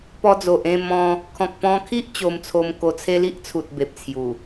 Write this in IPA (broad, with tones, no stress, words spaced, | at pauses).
pɔ˧d͡zo˨ʔẽ˥˧ mɔ̃˧ | kʰɔ̃˨k̚pɔ̃˧kʰi˦ʔ t͡ɕo˧m t͡sʰo˧mko˧t͡sʰe˦ li˦ʔt͡sʰu˨t̚ be˨p̚t͡sʰju˨˩